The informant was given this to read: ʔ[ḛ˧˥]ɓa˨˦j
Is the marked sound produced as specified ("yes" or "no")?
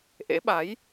yes